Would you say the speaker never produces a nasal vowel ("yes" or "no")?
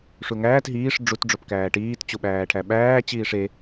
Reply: yes